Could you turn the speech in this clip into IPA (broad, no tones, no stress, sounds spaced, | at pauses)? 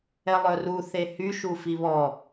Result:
ɛ lˠ œ r u θ e h y ʃ u f i β ɔ